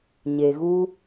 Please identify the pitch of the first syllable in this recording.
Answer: low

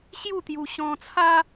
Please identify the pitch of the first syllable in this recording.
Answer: falling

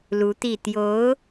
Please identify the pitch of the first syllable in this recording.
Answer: rising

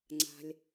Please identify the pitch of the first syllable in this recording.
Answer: low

